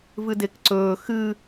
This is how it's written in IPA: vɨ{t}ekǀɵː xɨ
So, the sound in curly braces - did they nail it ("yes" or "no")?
no